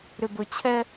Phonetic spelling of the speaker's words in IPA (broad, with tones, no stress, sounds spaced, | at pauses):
ɾ ʏ˨ b ɵ˨ t͡ɕʰ ɛ˦